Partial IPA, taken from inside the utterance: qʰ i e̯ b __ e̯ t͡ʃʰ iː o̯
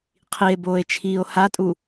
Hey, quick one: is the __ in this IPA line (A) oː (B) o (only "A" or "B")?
A